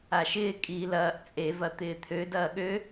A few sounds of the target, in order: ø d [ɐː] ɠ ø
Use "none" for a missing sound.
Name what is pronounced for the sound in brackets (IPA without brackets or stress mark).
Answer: ɐː